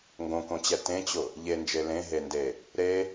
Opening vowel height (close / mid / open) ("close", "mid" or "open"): mid